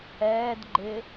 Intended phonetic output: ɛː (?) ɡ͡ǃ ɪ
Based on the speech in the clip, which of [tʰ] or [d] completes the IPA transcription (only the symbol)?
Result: d